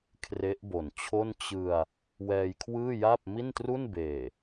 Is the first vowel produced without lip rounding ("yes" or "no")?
yes